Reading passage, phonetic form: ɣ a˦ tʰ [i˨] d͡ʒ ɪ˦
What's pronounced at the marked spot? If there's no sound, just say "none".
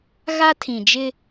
ĩ˨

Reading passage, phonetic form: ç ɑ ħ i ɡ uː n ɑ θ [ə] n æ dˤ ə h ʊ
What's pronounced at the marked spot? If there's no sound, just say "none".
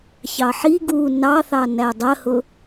ɑ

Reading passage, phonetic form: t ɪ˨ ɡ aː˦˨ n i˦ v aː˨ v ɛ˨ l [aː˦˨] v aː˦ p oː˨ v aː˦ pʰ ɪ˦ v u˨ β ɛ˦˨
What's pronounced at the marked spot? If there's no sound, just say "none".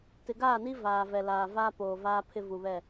aː˨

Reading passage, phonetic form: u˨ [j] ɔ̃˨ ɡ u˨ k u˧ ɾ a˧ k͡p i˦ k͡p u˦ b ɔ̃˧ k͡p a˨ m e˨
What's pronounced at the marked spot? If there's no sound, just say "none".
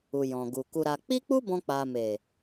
j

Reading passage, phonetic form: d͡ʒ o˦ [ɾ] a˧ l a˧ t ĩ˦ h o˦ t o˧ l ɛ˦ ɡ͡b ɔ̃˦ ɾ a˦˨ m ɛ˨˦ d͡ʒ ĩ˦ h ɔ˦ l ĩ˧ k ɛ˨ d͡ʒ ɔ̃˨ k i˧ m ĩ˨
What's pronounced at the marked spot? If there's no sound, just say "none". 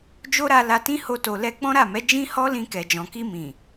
ɾ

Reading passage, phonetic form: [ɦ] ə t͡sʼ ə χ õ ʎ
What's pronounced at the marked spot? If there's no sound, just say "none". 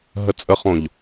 ɦ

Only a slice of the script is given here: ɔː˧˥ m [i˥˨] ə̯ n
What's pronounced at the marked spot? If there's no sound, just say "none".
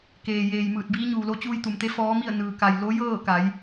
i˥˨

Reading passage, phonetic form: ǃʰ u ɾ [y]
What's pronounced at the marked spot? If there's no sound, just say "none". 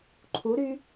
y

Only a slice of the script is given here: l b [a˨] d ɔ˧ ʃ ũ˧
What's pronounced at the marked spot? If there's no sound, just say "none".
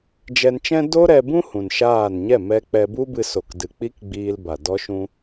a˨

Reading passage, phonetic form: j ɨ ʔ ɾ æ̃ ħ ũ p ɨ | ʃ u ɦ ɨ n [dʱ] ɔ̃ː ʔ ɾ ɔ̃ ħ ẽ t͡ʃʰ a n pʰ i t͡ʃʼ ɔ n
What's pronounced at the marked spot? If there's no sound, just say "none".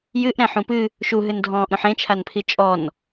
dʱ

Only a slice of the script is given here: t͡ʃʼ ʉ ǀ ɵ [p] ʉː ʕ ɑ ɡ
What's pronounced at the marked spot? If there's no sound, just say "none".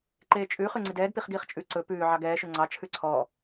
p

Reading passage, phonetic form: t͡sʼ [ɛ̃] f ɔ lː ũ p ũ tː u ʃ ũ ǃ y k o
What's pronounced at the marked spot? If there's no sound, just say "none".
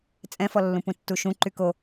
ɛ̃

